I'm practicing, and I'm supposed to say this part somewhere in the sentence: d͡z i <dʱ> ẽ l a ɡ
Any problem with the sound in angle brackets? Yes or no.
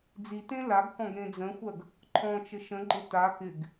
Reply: yes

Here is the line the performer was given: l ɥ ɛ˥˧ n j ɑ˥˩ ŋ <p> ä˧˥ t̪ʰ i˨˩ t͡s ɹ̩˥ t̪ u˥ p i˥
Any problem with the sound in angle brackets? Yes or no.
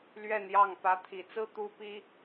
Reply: no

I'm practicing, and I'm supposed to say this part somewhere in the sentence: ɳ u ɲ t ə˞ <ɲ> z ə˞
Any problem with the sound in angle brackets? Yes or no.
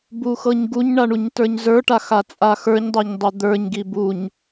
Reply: no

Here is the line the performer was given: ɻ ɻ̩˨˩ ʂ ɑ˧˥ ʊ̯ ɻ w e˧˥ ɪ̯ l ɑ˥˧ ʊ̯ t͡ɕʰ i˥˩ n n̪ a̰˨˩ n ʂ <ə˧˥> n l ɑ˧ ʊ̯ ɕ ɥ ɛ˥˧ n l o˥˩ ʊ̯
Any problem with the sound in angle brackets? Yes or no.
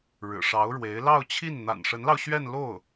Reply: no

